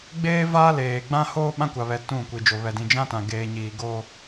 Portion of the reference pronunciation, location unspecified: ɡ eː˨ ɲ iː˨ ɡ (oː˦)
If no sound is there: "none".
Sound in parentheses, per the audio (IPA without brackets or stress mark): oː˦